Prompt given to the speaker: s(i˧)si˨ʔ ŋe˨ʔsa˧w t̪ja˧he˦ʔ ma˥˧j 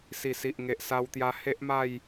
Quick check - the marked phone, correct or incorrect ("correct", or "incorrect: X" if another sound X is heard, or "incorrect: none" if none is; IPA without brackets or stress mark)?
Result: incorrect: i˨˩